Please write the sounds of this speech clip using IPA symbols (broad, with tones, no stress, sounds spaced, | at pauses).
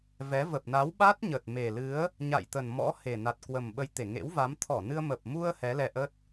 v ɛ˨˦ v ə˨˩ p̚ n a˨˦ w ɓ a˦˥ t̚ ɲ ə˨˩ t̚ m e˨˩ l ɨ˨˦ ə̯ | ɲ a̰˧˨ j t̪ ə˨˩ n m ɔ̰˧˥ h e˨˩ n a˨˩ t̚ k w ə˨˩ m ɓ ə˧ j t̪ e˧˩ ŋ ḛ˧˥ w v a˨˦ m t̪ʰ ɔ˧˩ n ɨ˧ ə̯ m ə˨˩ p̚ m u˧ ə̯ h ɛ˨˦ l ɛ˧ ʔ ə˦˥ t̚